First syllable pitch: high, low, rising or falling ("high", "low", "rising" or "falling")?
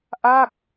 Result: falling